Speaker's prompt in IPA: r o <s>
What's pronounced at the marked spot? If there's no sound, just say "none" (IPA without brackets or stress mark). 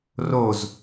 z